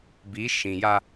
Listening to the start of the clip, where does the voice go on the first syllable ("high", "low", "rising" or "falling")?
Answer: rising